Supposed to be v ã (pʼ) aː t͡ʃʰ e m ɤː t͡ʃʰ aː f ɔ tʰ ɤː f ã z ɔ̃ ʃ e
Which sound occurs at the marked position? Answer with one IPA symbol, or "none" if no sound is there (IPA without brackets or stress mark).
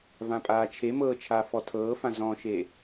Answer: pʼ